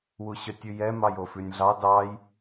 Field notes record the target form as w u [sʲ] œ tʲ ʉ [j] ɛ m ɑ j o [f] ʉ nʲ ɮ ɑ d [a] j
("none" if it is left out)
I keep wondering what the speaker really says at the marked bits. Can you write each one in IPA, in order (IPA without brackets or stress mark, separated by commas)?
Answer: ɕ, j, f, ɑ